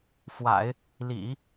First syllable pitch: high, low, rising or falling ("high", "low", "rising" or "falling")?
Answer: low